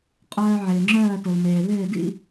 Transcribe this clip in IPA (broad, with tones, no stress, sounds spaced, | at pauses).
qʼ œː˦ ʕ ɪː˨ ŋ͡ǁ œː˥˨ t ʊ˨ l m eː˨ β ɪː˥˨ d ḭ˥˨